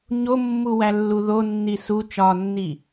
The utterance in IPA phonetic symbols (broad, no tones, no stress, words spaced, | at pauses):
ɲomːuwælːu ðonːi su t͡ʃɒnːi